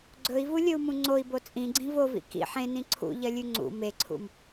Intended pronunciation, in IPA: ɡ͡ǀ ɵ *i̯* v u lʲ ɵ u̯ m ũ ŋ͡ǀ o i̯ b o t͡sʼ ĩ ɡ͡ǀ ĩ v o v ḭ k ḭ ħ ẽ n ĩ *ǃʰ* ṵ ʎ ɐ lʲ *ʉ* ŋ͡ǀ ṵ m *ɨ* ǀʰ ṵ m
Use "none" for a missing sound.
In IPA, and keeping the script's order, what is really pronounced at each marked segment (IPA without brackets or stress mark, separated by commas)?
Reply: i̯, ǀʰ, ʉ, e